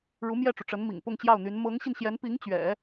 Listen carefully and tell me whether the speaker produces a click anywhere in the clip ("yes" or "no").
no